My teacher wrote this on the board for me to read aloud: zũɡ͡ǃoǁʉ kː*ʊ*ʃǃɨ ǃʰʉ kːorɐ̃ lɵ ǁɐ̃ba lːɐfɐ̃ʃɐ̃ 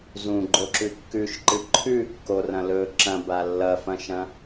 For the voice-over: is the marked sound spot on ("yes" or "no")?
no